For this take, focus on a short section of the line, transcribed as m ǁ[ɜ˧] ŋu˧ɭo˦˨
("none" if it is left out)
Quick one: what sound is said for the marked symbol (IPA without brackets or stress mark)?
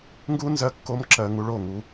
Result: ɜ˧